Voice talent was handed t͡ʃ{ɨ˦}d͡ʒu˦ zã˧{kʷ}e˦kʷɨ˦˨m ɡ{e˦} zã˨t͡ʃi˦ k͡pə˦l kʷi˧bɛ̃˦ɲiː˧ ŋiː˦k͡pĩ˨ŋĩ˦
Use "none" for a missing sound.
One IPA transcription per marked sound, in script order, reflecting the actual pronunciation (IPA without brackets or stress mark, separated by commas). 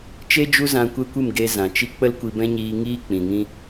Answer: e˦, kʷ, e˧